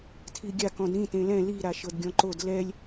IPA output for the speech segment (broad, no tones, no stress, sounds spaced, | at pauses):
tʰ i ɡʲ a k ɔ̃ d ɾ ĩ t ẽ l ɛ̃ l i ɾ a ʃ ɤ d ɡʲ ɔ̃ ǃ o d l ɛ lʲ